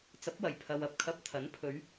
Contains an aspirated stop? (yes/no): yes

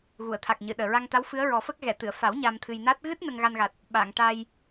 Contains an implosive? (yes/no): yes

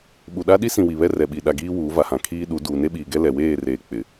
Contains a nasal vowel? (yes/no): yes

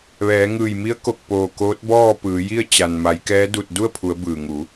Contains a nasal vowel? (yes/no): no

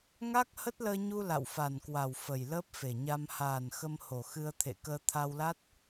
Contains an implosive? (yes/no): no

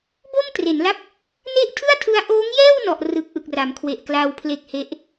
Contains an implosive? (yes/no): no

